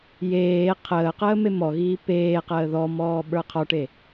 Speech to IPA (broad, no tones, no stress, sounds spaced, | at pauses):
j eː qʰ əː q əː m e m ɔ ɣ iː p eː q əː ð ɔ m ɔː ɓ ə˞ qʰ ɔ ʈ e